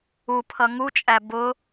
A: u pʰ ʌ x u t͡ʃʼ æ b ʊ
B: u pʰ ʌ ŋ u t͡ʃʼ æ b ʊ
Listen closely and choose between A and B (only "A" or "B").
B